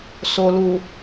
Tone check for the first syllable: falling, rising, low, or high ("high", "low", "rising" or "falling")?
low